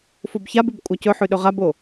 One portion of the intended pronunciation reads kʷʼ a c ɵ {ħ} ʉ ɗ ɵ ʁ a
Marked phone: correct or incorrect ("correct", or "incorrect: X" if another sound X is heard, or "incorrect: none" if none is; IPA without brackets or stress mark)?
correct